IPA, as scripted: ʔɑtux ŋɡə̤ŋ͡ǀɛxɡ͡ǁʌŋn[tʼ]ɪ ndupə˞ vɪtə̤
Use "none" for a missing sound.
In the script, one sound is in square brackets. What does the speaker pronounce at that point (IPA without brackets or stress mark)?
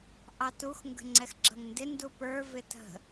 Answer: d